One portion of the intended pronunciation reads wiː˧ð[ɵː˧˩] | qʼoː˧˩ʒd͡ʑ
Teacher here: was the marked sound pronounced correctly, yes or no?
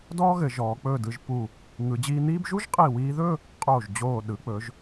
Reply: no